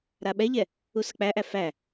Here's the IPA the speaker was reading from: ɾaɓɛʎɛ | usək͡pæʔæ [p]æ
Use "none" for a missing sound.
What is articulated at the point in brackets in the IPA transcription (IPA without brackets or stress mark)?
f